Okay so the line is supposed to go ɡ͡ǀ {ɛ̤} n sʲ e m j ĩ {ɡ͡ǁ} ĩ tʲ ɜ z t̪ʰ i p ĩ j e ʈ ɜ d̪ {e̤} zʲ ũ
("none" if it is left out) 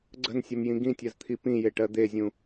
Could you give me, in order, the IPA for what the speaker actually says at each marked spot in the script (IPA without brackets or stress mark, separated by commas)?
ə̤, ɡ, e